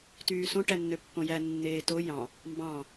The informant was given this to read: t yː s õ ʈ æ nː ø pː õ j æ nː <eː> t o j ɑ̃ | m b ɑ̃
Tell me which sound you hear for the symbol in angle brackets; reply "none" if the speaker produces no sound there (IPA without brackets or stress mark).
eː